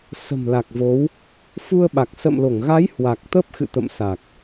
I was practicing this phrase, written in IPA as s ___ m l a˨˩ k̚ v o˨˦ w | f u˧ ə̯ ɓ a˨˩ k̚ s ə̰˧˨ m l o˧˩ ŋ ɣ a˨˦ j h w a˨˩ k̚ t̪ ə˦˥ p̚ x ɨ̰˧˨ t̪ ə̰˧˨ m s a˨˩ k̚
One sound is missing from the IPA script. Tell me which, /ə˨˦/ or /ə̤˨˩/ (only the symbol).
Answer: ə̤˨˩